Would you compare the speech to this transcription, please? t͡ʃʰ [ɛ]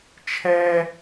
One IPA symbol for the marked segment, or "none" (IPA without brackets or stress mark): ɛ